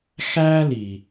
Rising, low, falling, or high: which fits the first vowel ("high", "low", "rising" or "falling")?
high